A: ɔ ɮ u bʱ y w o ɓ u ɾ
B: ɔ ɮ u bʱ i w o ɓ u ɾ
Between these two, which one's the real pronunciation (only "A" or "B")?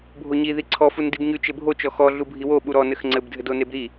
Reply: B